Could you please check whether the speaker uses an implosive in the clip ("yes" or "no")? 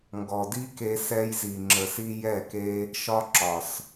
no